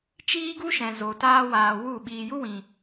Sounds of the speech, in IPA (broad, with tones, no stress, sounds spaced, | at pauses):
t͡ʃ iː˦ ɡ u˦ ʃ ɛ̃˨ z o˨ t aː˧ w aː˨ w u˦˨ ɓ iː˧ j u˦ w ĩ˨